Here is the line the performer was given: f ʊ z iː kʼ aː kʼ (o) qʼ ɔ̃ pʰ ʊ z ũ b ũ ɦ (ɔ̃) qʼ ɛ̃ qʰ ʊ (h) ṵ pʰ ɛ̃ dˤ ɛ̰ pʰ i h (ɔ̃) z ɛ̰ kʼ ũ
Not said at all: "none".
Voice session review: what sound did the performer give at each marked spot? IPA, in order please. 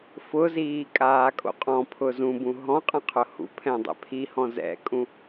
o̰, ɔ̃, h, ɔ̃

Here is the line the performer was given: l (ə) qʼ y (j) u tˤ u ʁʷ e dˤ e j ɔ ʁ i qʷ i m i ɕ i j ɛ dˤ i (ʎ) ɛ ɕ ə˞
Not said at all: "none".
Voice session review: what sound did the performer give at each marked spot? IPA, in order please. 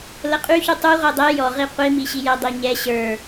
ə, ç, ɲ

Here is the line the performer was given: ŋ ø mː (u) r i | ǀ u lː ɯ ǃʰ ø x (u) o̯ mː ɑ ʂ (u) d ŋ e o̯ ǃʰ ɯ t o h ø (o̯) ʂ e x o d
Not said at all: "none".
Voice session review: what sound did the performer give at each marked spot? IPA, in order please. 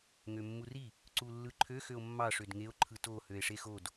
u, ø, ø, e̯

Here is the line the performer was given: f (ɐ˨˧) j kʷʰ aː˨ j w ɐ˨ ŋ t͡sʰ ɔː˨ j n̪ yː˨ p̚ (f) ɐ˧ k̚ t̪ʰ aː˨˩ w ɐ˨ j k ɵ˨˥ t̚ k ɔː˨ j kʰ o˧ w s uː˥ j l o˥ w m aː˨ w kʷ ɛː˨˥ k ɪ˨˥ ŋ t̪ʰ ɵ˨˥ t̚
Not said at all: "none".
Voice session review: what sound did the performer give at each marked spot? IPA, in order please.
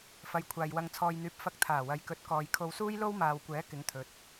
ɐ˨˧, f

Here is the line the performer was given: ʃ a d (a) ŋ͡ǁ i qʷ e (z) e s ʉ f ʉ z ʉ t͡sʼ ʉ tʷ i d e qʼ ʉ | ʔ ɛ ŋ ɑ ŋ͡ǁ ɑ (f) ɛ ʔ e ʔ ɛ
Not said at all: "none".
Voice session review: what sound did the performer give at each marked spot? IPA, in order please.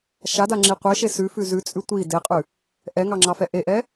a, ʃ, f

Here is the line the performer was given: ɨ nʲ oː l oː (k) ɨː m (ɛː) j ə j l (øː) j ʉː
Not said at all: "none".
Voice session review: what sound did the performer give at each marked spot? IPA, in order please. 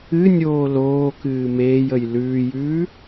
k, eː, ʉː

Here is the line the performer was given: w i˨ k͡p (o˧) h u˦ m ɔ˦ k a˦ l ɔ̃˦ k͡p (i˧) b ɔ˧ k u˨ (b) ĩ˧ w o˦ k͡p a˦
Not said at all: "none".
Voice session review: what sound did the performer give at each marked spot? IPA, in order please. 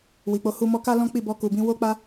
o˧, i˦˨, b

